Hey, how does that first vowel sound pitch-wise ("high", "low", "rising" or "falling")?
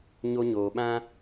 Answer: high